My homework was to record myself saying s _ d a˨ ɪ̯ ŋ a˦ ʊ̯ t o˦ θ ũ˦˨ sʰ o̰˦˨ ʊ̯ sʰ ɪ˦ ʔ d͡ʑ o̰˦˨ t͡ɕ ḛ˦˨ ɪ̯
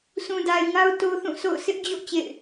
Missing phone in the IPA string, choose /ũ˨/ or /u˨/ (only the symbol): ũ˨